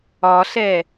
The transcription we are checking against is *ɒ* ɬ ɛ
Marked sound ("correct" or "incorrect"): correct